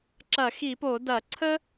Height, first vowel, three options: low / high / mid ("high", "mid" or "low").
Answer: low